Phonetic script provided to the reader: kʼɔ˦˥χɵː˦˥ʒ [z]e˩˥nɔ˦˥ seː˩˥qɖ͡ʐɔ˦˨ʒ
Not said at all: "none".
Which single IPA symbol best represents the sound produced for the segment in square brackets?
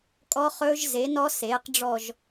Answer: z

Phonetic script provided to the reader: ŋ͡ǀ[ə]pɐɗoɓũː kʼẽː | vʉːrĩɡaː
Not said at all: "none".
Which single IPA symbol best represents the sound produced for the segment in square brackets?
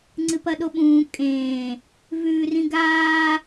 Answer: ɨ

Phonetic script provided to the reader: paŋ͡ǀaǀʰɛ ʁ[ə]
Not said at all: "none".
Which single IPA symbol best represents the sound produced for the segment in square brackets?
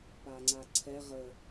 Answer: ə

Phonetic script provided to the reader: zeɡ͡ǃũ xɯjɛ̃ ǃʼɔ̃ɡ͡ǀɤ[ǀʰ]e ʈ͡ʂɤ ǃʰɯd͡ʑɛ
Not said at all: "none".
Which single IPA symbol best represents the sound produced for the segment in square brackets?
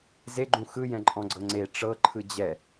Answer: ŋ͡ǀ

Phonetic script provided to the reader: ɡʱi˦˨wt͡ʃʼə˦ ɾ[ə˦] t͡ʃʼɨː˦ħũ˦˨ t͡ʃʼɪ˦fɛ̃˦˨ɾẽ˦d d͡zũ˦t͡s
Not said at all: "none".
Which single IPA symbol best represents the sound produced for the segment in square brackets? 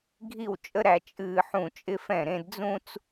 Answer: æ˦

